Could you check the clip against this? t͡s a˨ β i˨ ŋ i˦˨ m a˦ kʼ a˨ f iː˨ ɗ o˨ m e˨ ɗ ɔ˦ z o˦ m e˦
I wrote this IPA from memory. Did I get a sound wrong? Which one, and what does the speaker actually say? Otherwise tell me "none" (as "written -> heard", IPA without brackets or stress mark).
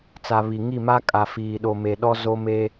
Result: none